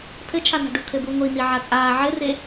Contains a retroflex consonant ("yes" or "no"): yes